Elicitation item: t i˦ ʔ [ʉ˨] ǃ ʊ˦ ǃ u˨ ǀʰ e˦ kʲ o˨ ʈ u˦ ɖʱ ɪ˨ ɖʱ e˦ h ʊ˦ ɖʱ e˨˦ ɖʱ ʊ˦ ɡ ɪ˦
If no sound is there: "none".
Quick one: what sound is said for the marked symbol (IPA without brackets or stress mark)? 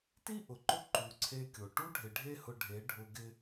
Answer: ʊ˨